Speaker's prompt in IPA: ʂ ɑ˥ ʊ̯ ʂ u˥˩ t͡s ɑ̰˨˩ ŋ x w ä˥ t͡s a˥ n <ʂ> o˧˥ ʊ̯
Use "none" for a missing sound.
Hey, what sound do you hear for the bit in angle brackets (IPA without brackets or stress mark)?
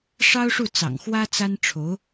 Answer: ʈ͡ʂʰ